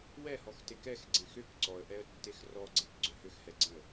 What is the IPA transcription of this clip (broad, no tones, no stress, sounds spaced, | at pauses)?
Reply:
w ɛ h ɔ x t e k ɛ x ɡ͡ǀ ẽ x ʏ k ǀ ɔ ə̯ ʔ ɛ ə̯ tː e x r ɔ ɡ͡ǀ e k ɡ͡ǀ ʏ h ʏ x h ɛ ɡ͡ǀ ẽ ə̯